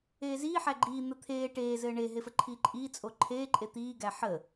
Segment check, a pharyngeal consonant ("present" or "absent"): present